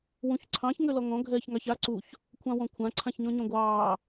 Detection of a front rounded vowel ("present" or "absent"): present